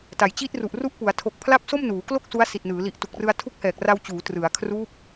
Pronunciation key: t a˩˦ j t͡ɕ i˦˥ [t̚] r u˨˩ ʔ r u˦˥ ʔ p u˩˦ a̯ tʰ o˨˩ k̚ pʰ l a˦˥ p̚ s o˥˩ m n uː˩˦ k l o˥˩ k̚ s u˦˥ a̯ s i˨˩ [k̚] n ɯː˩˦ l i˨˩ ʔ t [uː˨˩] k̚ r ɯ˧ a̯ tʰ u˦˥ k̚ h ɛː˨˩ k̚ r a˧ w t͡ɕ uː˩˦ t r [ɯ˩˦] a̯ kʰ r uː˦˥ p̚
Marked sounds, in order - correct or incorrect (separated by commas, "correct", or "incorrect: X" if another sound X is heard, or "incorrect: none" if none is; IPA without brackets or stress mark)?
correct, incorrect: t̚, incorrect: u˨˩, correct